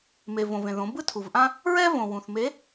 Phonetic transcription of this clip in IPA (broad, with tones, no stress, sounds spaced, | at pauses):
m e˩ v õ˩ v ẽ˩ ð õ˩˧ b ɯ˥ tʰ u˩ v ʔ ã˥ | ɹ ɛ˥ v õ˩ w ũ˩ θ m e˧˥